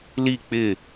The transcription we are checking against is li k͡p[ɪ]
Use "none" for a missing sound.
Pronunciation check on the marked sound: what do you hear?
ɪ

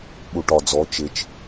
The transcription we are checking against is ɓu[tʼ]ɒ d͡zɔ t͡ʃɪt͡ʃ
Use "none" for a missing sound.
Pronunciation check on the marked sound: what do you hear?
ʈ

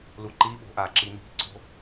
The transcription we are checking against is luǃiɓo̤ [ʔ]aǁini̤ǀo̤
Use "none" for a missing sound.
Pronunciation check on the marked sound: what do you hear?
ʔ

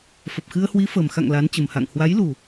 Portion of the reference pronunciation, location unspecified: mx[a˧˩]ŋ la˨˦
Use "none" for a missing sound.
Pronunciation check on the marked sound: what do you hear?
a̰˧˨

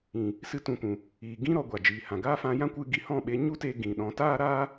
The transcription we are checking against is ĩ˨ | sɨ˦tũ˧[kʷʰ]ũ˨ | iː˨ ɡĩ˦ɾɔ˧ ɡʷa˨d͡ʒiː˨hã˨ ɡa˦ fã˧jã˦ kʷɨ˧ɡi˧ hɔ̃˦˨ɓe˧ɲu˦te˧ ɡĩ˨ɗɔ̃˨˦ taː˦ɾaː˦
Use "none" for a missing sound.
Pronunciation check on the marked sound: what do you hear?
kʷ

